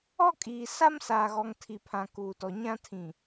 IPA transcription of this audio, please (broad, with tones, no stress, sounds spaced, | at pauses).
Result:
ɔ˦ kʼ iː˨ s a˦ m s aː˨ ɣ ɔ˨ ŋ tʰ i˨ pʰ ã˨ k uː˨ t ɔ˨ ɲ ã˦ tʰ ĩ˨